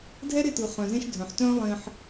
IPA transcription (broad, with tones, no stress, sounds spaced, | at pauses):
dʱ ɛ˦ ɾ ɪ˦˨ t ɯ˨ χ œ̃˨ z ẽ˦ ʃ dʱ œ̃˨ ħ t œ̃ː˦ lˠ ẽ˦ ħ